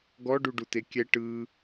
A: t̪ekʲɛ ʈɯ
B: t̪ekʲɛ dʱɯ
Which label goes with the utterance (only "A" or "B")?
A